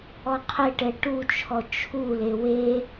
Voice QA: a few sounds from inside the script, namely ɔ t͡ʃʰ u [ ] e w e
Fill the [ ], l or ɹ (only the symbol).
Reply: l